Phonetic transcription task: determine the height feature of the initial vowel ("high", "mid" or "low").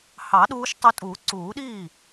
low